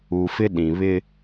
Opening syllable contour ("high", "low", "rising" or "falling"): low